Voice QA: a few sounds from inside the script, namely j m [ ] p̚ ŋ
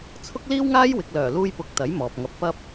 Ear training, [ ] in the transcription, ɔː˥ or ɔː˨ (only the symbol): ɔː˨